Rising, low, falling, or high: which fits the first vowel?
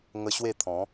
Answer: high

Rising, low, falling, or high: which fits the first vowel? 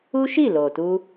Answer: high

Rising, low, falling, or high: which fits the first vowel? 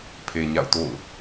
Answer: low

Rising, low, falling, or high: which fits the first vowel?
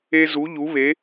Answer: high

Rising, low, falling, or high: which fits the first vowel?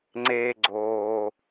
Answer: low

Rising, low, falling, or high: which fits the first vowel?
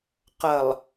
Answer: low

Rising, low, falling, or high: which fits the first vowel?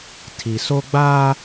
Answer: low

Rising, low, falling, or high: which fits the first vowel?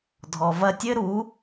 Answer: low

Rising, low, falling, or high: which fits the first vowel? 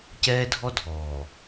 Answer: high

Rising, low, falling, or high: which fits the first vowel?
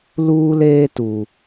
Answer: high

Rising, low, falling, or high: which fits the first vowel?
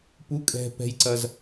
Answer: rising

